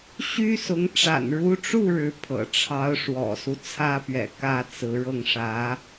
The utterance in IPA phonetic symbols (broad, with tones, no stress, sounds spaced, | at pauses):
ɕ y˥ s ʊ˧˥ ŋ ʈ͡ʂ a̰˨˩ n ɻ u˧˥ ʈ͡ʂ u˥˩ ɻ ɻ̩˧˥ pʰ ɤ̰˨˩ ʈ͡ʂʰ ɑ˧˥ ʊ̯ ʂ w ɔ̰˨˩ s u˦ t͡sʰ ä˥ p ɥ ɛ̰˨˩ k ä˥˩ t͡s ɹ̩˧˥ ɻ ɤ˥˩ ŋ ʂ ä˧˥